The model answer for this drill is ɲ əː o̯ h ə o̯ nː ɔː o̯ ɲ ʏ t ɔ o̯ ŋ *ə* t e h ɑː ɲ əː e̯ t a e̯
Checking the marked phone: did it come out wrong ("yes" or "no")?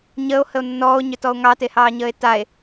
yes